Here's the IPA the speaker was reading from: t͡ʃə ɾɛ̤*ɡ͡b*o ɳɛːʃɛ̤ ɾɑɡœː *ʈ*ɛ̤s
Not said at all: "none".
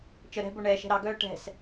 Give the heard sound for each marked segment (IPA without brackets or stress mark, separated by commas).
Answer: b, ʈ